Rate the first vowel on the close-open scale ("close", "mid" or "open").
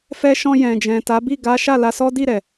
mid